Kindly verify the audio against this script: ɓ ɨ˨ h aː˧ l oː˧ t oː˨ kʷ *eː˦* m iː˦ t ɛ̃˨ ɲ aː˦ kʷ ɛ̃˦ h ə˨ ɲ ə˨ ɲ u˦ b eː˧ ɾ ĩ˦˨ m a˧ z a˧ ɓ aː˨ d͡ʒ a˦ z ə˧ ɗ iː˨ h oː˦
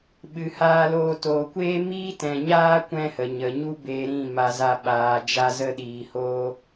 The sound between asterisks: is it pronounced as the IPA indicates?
yes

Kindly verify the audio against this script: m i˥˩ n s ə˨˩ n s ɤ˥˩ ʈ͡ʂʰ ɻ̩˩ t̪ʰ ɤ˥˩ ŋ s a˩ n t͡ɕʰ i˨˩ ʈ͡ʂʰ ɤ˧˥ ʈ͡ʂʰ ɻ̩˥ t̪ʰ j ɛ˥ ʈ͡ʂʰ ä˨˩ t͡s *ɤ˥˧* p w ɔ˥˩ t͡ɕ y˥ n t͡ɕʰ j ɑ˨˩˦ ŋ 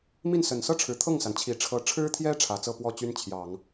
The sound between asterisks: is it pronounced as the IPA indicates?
yes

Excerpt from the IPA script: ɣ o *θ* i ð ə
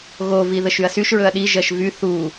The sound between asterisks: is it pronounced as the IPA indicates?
no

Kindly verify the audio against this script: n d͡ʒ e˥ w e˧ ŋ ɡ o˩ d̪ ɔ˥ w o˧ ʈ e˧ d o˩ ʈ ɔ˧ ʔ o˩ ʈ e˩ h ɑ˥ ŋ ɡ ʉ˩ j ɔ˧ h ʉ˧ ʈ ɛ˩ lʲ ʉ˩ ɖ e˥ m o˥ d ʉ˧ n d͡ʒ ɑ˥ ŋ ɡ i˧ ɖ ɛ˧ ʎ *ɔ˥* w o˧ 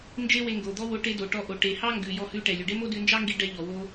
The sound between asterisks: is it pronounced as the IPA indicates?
no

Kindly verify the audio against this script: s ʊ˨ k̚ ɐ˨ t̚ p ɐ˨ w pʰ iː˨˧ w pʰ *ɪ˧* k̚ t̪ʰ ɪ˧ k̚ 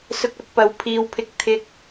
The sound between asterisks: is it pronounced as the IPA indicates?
yes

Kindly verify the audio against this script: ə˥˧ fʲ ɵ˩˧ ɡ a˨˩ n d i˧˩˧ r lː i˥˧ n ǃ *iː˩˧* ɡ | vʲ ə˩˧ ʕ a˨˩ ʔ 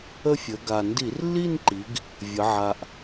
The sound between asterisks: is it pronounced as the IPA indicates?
no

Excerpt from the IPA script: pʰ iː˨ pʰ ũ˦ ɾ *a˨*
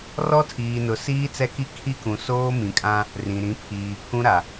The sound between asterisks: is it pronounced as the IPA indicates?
yes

